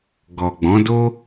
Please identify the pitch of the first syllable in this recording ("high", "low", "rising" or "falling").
low